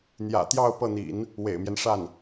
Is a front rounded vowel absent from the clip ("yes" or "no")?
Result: yes